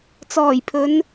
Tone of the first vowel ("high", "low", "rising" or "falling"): low